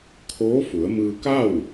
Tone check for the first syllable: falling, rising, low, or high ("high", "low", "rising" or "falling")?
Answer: rising